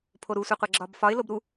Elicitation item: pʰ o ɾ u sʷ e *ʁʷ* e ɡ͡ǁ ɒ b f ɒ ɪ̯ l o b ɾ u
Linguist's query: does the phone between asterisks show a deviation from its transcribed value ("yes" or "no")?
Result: yes